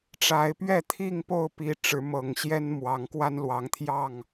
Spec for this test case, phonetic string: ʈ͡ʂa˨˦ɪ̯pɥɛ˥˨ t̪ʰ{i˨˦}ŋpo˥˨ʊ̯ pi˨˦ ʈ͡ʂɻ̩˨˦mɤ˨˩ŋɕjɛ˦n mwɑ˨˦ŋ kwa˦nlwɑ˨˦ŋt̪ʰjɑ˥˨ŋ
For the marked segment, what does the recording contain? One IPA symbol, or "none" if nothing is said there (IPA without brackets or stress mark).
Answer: i˥˨